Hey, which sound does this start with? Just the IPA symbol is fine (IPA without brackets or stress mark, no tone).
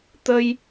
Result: t̪